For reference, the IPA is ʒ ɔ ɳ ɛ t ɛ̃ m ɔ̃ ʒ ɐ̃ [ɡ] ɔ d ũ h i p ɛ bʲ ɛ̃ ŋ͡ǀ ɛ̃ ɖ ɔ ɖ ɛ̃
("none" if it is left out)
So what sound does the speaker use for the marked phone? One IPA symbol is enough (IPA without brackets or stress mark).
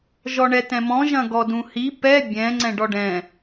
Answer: ɡ